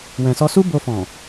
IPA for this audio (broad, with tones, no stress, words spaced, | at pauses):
wɛ̃˨sɔ˧su˦ bo˧fɔ̃˨